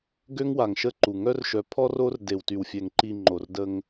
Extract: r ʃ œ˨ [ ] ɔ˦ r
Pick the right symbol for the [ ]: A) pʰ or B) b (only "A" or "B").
A